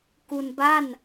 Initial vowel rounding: rounded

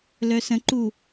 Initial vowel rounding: rounded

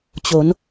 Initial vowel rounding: rounded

